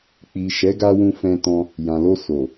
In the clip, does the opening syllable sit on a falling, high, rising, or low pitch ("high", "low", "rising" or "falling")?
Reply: low